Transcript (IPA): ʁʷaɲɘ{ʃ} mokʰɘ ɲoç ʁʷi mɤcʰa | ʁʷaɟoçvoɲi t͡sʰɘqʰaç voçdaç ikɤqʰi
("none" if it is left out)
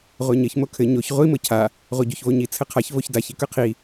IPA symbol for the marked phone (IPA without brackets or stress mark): ç